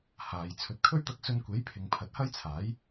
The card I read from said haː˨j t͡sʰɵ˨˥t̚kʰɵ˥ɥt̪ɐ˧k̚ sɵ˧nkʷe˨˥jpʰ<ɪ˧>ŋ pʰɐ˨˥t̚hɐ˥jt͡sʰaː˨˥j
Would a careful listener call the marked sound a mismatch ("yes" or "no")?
yes